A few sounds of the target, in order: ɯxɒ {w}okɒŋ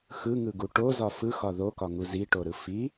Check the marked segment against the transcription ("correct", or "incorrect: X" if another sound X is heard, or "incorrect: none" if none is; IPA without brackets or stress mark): incorrect: ð